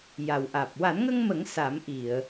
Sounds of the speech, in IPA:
ja˨˩wʔaː˨˩p̚ wa˨˩˦nŋə˧ŋmə˨˩˦ŋ sa˨˩˦mʔi˨˩˨ə̯

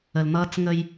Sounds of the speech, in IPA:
ə˨ln̪ʌː˦t͡s ŋə˦j

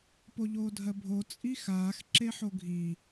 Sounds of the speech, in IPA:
poʎoːdʱɜbʱo t͡sʼixaːx ǁeħoɡʱi

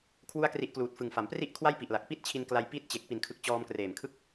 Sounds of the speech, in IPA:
kʰwu˥˩a̯kri˦˥ʔkluː˨˩t̚fɯ˨˩ŋ fa˩˦mpri˥˩ʔ kʰwa˥˩jpi˨˩ʔla˨˩k̚ pi˥˩t̚t͡ɕʰi˧n kla˧j pi˦˥t̚ t͡ɕe˨˩k̚ pi˨˩nkʰɯ˨˩k̚ t͡ɕɔː˧mkreː˨˩mkʰɯ˥˩k̚

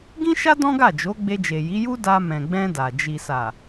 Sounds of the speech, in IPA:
ɡĩ˦ʃa˦ dɔ̃˦ɡa˦˨ d͡ʒo˨˦ ɡ͡be˧d͡ʒe˨ji˨˦ju˦ da˧mɛ̃˨ɡ͡bɛ̃˧ da˨ d͡ʒi˨sa˨

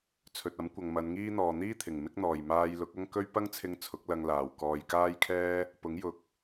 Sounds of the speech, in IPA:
t͡sʰɵ˨t̚ɐ˨˥mkʷɐ˨ŋ mɐ˨˧nŋiː˥n̪ɔː˨ n̪iː˥t̪ʰɪ˨˩ŋ mɪ˥k̚ n̪ɔː˨˩j maː˧jlʊ˨˥k̚ɐ˥ŋkɵ˥ɥ pɐ˥ŋt͡sʰɪ˧ŋ t͡sʰʊ˨˥k̚lɐ˧ŋ laː˨˩w kɔː˨jkaː˥jkʰɛː˥ | pʊ˨˥ŋjʊ˨˥k̚

